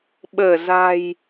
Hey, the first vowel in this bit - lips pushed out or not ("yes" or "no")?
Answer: no